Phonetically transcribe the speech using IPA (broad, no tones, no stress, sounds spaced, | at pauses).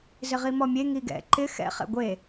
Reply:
z ɪ ʁ i m ɔ mʲ e ŋ i ɡ ɛ̰ ǃ ɪ x ɛ̰ χ ɛ̰ ɡʷ e